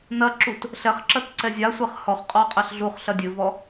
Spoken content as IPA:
nɐǁut | ɬɛχǁɐt ǀɛzʲasʷɛχ hɔχqʼɔ qʼɛɬɮuχɬɐ dʲɨvɔ

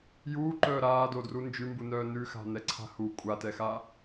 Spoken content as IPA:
juːǃœː ɾaːdodru nd͡ʒʉmbunœː nʉxa̤nɛǀʰa̤ hu kʷʼatɛxa

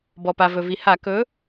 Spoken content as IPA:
bɔ˩pa˩vɵ˩vi˩ ha˧˩˧kɵ˨˥

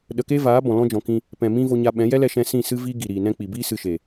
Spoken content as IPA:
ɗə˧ ke˦vaː˨˦ bɔ̃˨lɔ̃˦d͡ʒɔ̃˨kĩ˧ | pɛ̃˨mĩ˦vo˧ ɲa˧ɓɛ̃˨˦ jɛ˦lɛ˧ʃɛ̃˧ sĩ˦˨sɨ˦ viː˦ɡi˨ ɾiː˨nɛ̃˦ k͡pi˨biː˦ sɨ˧ʃe˨

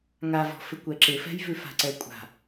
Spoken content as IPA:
ŋavɔ̤fɪ kʷɛǁɪfɛ̤jvʉ fa̤ǀɛkʷʼa̤

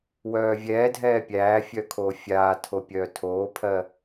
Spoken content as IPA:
wœːvʲɛːdʱɛː pʲæːfʲœ kʰoːfʲaːtʰo pʲœːtʰoːpʰɜ

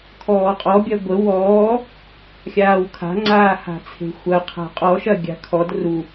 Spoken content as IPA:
kʰɔːqʼɔ bʲɐɡʷə wɔː | xʲaːwkʰa̤ŋ͡ǀaː ha̤t͡sʰe̤xʷɐ qʰa̤qʼɔ ʃɐɡʲa̤kʰɔd ru

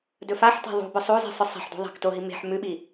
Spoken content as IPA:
dɵfaħta̤ ðˤṳbɵ sˤuzi̤ sˤɵsˤa̤ħdṳ ðˤa̤ktoɦi me̤ħ mʉɓi

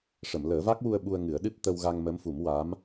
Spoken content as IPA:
ʂə˨˩˨mləː˨˩˦va˦˥k̚wu˧ə̯ ɓu˧ə̯ŋɨ˨˩˦ə̯ɗɨ˦˥p̚ t̪ə˧wɣa˧ŋmə˧˥mfu˨˩˦m wa˧˥m

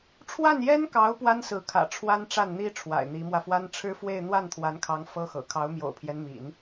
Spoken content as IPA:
ʈ͡ʂʰwa˥˩njɛ˥nkɑ˧˥ʊ̯ pwa˥nsɹ̩˧˥kʰä̰˨˩ ʈ͡ʂʰwa˥nʈ͡ʂa˥˩nn̪i˥ ʈ͡ʂʰwa̰˨˩ɪ̯n̪i˧˥mwä˧fwa˥n ʈ͡ʂʰɻ̩˥fwe˥˧ɪ̯ n̪wa˥˩nt̪ʰwa˧˥nkʰɑ˧˥ŋ fɤ˥xɤ̰˨˩ kʰɑ˧˥ʊ̯mjo̰˨˩ʊ̯pʰjɛ˦nmḭ˨˩˦n

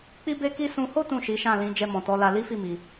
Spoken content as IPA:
k͡pi˦be˦ki˦ sũ˧ho˦ tũ˦˨ʃi˨˦ʃã˦˨ lĩ˨˦ d͡ʒɛ˧mɔ̃˨tɔ˨˦la˧ li˦fi˦˨mi˨

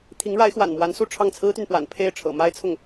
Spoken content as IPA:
t̪ʰi˧˥ŋɻa˧˥ɪ̯xwa̰˨˩nmwa˧˥n su˥˧ʈ͡ʂʰɑ˥˩ŋ t͡sʰɹ̩˥t̪y˨npwa̰˨˩n pʰe˥˩ɪ̯ʈ͡ʂʰɤ̰˨˩ma˥ɪ̯t͡sʰʊ˥˩ŋ

